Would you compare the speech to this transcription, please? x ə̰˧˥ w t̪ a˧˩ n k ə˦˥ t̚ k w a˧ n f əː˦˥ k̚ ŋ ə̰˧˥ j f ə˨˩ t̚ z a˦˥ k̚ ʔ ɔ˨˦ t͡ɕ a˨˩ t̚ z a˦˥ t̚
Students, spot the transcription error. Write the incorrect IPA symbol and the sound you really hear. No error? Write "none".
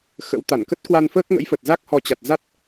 ʔ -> h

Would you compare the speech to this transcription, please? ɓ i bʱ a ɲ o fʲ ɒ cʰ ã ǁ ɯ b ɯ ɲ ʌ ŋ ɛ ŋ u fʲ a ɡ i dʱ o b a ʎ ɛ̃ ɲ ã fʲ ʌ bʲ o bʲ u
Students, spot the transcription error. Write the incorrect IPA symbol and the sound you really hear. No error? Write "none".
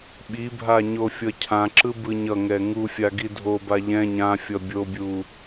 ɒ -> ʌ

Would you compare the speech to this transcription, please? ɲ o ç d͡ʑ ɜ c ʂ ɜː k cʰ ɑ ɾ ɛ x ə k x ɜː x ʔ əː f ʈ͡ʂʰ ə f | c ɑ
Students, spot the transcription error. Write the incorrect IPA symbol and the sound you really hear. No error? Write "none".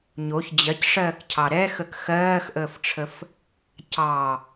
none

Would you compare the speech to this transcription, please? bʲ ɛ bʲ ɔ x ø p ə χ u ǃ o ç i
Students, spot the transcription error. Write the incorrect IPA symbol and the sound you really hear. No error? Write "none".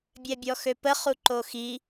ç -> x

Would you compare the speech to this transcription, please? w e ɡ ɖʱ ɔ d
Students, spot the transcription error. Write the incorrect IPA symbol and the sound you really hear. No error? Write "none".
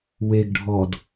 none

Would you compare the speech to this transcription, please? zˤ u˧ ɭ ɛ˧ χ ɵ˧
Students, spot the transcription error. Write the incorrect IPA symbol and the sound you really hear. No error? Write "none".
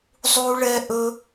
χ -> ʔ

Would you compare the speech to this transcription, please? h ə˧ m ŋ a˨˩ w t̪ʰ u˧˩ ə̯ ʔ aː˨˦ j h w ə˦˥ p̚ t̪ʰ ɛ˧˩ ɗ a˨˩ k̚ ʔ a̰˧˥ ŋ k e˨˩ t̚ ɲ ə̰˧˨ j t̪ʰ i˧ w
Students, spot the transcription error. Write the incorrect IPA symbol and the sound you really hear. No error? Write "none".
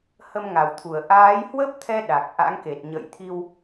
ɛ˧˩ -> ɛ˧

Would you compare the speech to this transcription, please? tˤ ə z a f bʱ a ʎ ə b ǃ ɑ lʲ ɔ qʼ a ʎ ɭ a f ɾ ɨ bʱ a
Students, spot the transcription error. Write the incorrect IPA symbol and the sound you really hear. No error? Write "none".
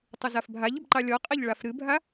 none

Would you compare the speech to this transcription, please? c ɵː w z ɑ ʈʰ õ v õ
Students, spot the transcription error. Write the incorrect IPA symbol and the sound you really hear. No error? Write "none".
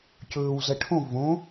ɑ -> ɐ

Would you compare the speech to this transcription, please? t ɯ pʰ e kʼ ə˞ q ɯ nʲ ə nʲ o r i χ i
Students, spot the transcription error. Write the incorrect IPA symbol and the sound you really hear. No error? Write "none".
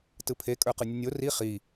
none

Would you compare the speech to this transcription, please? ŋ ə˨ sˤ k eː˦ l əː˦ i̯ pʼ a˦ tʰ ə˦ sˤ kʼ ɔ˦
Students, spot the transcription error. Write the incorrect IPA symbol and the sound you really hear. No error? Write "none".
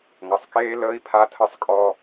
pʼ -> pʰ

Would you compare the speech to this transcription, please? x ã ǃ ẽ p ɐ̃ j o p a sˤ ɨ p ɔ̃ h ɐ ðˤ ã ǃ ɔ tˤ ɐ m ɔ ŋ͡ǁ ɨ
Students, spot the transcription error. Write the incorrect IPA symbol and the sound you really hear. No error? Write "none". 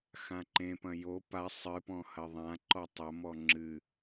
none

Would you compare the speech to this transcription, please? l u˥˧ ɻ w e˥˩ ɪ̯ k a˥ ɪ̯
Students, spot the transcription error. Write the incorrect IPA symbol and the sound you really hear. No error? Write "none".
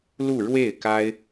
none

